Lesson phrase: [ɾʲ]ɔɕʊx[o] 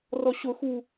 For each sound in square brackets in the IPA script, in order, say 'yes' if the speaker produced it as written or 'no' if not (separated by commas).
no, no